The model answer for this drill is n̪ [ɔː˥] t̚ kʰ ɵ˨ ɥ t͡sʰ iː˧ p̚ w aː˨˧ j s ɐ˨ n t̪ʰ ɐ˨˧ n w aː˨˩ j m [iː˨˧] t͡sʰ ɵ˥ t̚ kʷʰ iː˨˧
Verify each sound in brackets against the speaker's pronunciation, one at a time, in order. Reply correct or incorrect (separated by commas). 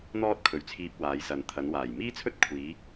correct, incorrect